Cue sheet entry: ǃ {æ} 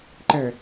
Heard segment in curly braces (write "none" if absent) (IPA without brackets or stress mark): æ